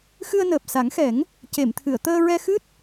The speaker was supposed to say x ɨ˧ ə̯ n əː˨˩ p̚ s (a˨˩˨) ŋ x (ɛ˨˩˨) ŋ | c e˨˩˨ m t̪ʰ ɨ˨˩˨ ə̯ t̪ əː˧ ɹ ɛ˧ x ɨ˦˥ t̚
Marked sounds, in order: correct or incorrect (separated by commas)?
incorrect, incorrect